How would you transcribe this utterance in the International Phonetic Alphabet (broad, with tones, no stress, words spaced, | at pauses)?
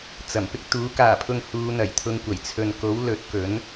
t͡sɐ˨˩mpɪ˥k̚t̪uː˨˥ kaː˨˩pʰʊ˨ŋ huː˨˧ n̪ɐ˨˩j t̪ʰʊ˧ŋkʷɐ˨˩j t͡sʰɵ˨nko˨˥w lɵ˨˥t̚kɵ˨˥n